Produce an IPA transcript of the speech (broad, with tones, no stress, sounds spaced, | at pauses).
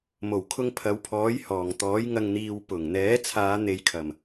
m o˨˩ w kʰ ʊ˧ ŋ pʰ ɐ˨˧ w pʰ ɔː˨˥ j h ɔː˨˩ ŋ t̪ ɔː˨˥ j ŋ ɐ˨ ŋ n̪ iː˨ w p ʊ˨˩ ŋ n̪ ɛː˨˥ t͡sʰ aː˨˧ n̪ e˨ j kʰ ɐ˨˩ m